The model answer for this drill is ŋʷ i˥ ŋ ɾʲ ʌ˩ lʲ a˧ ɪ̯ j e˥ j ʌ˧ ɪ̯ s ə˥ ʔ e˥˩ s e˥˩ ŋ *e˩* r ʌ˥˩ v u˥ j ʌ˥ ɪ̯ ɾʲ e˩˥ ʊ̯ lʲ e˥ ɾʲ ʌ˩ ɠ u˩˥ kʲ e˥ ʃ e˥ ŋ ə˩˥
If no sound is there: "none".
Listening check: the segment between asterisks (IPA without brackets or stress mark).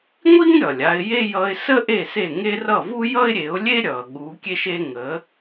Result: e˥